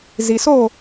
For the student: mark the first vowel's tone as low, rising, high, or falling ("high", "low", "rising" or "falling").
low